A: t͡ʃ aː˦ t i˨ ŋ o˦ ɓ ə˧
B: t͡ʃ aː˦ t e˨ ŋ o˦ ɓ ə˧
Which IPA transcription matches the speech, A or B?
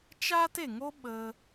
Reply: B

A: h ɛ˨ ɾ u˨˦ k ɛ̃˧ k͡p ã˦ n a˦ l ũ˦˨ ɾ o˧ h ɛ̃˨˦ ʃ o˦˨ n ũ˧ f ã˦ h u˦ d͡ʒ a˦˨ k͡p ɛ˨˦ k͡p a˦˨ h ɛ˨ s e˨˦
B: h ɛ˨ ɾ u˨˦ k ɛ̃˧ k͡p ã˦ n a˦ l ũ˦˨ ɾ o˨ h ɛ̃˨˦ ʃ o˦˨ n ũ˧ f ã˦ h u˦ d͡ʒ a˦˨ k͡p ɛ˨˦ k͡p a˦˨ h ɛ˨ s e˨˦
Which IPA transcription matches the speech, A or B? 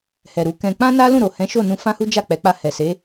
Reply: B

